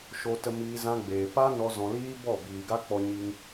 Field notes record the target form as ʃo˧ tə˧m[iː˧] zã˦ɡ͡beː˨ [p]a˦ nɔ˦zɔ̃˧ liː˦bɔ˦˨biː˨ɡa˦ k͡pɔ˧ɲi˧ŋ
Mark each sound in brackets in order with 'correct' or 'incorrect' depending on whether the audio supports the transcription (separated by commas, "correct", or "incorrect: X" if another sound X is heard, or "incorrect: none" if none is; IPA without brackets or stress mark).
correct, correct